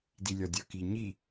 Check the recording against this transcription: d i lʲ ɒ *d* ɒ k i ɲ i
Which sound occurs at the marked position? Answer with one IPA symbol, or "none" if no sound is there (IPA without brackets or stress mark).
dʲ